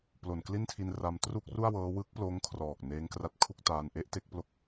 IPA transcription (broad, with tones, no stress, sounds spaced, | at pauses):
p l o˨˩ n k l i˥˩ n tʰ i˧ n r a˧ m t r u˥˩ k̚ r u˥˩ a̯ w ɤː˦˥ w ɯ˦˥ k̚ p l oː˦˥ ŋ kʰ r ɔː˨˩ k̚ n eː˦˥ ŋ k r a˦˥ t̚ kʰ u˥˩ k̚ t aː˧ n ʔ e˦˥ ʔ t e˦˥ k̚ p l o˥˩ k̚